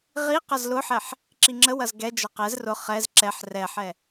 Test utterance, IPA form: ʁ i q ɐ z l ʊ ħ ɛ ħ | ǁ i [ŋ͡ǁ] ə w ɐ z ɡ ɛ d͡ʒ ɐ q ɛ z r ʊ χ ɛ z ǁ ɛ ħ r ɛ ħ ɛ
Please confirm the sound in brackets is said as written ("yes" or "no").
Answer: yes